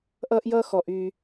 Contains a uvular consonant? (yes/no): no